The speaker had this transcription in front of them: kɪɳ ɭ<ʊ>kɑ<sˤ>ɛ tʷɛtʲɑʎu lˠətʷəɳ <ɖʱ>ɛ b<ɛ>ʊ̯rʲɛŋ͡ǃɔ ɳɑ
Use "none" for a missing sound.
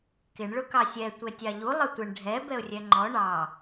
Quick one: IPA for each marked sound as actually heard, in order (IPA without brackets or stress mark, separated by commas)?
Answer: ʊ, sʲ, ɖʱ, ɛ